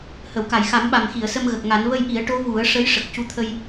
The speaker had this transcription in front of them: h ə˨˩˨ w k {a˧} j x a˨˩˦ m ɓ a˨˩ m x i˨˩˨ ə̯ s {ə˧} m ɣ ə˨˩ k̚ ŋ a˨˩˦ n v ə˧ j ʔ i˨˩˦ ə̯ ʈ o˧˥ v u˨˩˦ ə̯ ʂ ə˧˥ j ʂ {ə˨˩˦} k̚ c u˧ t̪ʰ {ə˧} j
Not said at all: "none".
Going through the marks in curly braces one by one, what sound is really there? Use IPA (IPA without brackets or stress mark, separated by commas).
a˨˩˨, ə˧, ə˨˩, ə˧